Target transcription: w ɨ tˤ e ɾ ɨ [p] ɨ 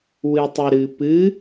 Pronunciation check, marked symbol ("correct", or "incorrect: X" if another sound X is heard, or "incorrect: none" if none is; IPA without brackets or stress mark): correct